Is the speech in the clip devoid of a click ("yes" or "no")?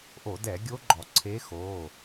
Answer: no